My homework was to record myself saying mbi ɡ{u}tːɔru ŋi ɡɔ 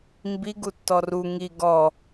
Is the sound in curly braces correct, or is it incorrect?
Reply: correct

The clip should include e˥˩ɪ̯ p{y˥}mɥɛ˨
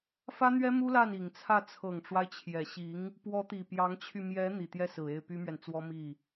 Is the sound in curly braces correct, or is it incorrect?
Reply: correct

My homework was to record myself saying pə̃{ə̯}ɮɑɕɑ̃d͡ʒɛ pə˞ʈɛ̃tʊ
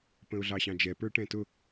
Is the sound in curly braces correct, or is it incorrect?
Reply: incorrect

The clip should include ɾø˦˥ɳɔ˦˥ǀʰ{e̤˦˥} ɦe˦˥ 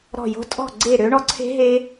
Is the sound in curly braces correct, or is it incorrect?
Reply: correct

